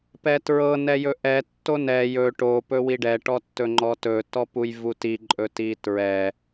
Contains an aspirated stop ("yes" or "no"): no